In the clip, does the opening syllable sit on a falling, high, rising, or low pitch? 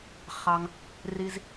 low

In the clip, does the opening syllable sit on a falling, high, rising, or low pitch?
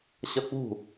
high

